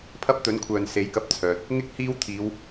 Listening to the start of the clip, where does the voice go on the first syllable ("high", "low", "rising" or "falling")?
high